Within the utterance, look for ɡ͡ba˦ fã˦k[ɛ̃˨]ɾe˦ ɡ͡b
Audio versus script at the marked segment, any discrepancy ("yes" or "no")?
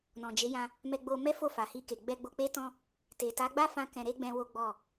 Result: yes